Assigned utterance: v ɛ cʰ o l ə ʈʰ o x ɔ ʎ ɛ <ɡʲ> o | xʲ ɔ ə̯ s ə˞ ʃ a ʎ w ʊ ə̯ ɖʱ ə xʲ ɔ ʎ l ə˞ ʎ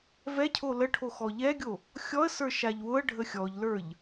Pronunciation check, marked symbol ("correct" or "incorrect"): correct